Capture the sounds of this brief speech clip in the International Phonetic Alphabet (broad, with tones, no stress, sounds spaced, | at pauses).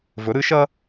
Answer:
v ɵ˩˥ ɾ ɨ˩˥ ʃ ɐː˥